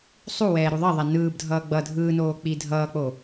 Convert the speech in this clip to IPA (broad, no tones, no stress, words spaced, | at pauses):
sˤuwɛː ɾuðˤʌðˤɛ nɯːbdʱʌː ɡ͡bʌ dʱɯːnoː k͡pidʱʌːk͡po